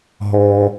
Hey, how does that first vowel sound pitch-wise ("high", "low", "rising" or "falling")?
high